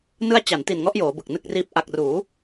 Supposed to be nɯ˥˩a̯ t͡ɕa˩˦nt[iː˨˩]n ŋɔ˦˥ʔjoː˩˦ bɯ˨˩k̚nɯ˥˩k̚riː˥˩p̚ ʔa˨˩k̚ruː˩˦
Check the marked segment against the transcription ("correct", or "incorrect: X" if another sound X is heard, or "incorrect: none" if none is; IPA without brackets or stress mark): incorrect: i˨˩